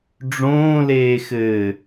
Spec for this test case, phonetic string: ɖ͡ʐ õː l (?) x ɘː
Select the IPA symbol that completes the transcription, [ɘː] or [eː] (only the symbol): eː